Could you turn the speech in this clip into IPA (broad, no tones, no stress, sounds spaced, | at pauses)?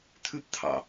t̪ʰ ʉ p t̪ʰ ɑ̰